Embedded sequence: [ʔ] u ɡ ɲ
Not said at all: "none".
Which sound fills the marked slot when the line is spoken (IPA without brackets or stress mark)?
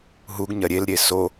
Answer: ɦ